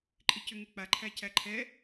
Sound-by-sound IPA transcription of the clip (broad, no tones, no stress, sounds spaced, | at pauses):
ǃʼ i c ʏ ŋ e k͡p a ǃʰ æ c æ ǃʰ ɛ